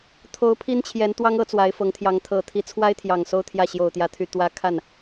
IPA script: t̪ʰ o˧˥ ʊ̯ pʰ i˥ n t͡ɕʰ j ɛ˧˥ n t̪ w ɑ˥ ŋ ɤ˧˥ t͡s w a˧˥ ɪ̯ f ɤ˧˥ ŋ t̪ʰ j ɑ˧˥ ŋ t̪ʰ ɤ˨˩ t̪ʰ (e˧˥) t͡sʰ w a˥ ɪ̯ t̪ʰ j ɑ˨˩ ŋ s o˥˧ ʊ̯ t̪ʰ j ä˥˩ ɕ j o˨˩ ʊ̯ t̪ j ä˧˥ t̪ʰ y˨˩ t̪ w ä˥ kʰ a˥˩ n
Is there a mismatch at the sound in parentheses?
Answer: yes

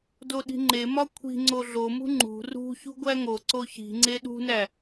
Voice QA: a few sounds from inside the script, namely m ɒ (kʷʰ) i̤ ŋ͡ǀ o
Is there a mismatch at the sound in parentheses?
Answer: no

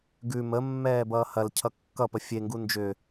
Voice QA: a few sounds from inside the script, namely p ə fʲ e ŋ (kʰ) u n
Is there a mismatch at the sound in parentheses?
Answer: yes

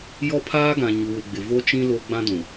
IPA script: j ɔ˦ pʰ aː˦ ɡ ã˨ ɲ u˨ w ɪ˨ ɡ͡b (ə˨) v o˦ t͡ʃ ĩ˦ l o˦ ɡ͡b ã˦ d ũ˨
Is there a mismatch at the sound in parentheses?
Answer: yes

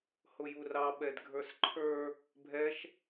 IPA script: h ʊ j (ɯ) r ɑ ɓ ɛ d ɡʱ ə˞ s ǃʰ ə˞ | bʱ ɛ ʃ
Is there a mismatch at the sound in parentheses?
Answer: yes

